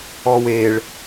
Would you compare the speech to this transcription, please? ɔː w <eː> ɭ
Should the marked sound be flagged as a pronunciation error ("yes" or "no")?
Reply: no